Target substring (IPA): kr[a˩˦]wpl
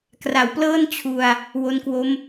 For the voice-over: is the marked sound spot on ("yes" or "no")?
yes